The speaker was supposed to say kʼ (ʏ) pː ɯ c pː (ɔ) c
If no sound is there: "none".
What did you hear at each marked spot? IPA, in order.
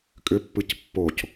ʏ, o

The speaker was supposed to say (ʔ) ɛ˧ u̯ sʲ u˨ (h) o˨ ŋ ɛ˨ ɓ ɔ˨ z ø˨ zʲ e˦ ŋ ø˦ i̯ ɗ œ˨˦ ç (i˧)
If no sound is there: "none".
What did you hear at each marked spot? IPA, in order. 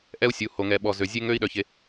ʔ, h, e˧

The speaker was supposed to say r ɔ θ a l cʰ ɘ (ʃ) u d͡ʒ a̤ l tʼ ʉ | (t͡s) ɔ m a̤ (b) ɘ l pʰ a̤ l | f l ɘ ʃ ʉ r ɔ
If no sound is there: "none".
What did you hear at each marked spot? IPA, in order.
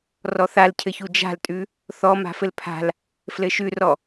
ç, θ, f

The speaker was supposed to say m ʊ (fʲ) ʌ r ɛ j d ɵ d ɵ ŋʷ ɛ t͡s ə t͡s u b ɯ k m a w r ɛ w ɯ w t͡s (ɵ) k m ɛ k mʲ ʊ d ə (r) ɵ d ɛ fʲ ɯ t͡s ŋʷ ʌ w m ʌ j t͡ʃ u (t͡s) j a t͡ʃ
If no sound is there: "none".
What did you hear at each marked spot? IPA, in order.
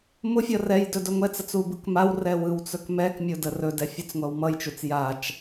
fʲ, ɵ, r, t͡s

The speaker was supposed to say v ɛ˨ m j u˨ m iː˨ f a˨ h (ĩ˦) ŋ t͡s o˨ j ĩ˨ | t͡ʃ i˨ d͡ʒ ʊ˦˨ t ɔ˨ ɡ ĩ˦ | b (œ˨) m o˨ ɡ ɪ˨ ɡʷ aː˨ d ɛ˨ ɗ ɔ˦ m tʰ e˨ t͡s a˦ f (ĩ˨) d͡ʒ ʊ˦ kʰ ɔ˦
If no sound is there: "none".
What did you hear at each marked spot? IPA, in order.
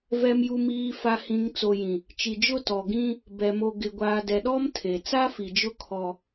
ĩ˨, ɛ˨, i˨

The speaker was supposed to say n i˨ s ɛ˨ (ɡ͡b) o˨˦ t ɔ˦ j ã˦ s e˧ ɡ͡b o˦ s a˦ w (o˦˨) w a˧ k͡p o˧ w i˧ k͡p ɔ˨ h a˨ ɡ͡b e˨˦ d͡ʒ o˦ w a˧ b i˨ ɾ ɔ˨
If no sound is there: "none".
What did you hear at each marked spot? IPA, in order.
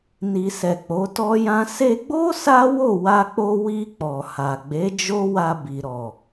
k͡p, o˦˨

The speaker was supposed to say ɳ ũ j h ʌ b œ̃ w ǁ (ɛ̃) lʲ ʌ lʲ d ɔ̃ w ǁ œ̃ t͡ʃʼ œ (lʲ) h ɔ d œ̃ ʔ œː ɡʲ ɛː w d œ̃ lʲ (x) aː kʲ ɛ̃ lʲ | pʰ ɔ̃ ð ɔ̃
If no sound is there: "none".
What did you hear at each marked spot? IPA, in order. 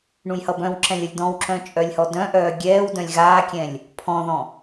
ɛ̃, lʲ, ɣ

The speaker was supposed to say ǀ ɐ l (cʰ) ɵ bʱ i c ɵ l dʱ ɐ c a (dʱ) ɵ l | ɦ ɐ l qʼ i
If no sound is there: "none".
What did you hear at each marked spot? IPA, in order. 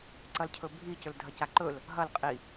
cʰ, ǃ

